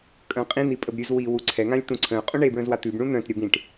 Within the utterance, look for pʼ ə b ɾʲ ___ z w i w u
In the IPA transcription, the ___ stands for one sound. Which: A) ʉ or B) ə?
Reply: A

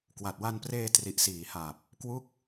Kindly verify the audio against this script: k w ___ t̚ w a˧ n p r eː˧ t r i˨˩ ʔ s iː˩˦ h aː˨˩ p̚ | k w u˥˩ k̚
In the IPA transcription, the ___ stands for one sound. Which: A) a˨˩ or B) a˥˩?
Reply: A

